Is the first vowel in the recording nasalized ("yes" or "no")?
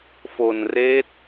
no